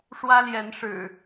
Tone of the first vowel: high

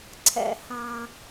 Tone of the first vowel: low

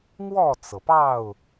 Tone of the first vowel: falling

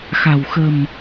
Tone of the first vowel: low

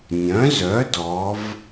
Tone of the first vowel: rising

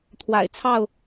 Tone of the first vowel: low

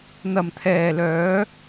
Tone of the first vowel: low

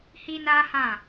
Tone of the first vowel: high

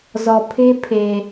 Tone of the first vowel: low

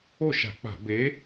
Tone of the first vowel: falling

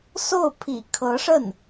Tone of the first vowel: falling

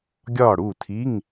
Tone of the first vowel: falling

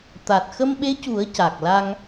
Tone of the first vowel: low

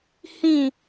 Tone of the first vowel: falling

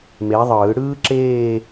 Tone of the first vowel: rising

